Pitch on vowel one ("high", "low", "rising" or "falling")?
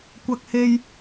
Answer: high